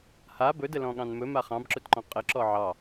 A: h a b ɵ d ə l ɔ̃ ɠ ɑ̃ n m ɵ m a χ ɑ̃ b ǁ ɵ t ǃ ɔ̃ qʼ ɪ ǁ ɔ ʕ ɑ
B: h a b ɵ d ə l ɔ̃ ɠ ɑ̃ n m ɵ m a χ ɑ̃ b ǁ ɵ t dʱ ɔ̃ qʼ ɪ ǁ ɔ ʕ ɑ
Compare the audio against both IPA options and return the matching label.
A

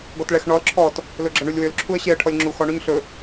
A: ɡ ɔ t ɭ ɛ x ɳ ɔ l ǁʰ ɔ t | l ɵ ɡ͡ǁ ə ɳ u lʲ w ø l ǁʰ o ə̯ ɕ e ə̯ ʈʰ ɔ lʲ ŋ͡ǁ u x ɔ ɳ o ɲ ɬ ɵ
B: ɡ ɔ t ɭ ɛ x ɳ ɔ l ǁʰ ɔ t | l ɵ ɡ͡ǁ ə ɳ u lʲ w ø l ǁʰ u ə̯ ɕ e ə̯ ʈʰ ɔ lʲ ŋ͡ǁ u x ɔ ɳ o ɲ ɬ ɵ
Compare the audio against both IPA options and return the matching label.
B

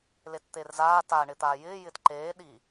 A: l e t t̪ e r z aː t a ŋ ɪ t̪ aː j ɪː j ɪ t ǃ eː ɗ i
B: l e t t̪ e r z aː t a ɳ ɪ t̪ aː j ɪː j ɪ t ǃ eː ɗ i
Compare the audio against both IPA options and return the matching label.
B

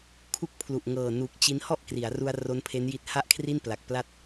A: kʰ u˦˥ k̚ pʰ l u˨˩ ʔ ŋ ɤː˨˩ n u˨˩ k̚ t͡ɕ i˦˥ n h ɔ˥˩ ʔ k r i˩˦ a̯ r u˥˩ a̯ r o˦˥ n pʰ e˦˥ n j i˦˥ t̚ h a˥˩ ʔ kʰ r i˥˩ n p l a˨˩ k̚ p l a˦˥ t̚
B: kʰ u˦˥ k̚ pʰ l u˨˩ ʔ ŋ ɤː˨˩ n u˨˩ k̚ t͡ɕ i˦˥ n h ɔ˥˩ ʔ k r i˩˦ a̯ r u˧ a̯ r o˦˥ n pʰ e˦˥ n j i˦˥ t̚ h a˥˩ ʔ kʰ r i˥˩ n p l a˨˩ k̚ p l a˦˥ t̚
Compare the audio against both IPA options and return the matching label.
B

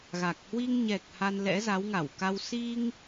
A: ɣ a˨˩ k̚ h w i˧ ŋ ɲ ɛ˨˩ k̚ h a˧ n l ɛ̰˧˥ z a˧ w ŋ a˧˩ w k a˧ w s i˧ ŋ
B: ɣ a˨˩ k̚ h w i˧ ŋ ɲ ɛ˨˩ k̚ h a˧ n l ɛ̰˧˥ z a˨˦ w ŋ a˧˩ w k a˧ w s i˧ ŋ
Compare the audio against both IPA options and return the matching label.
B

